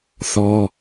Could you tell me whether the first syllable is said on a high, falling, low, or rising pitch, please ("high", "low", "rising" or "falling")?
high